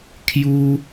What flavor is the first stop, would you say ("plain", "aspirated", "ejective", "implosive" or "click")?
aspirated